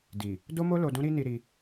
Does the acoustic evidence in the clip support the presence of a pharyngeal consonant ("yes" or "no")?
no